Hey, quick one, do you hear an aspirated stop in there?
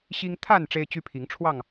yes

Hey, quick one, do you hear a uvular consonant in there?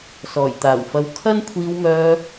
no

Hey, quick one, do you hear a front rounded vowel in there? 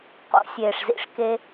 no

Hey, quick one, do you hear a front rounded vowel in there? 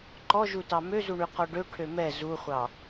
yes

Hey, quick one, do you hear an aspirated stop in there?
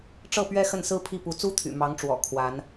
yes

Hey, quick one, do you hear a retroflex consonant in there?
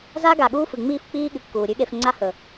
no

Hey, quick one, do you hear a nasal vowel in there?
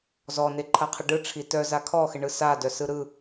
no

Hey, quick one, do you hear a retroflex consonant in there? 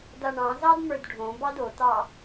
yes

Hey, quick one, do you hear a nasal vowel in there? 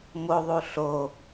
no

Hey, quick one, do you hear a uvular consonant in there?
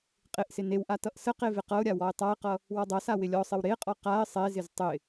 yes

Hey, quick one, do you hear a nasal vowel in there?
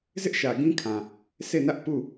yes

